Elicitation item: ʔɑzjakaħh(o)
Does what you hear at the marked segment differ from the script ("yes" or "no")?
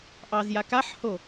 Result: no